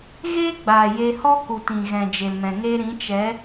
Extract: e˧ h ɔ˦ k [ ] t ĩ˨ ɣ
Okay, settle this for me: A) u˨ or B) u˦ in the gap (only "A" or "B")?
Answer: A